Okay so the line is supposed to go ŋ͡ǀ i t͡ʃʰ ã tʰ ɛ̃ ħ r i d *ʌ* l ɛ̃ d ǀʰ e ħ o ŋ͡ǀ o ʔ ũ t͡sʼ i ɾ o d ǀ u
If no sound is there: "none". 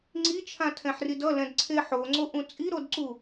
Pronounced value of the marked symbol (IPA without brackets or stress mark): ʌ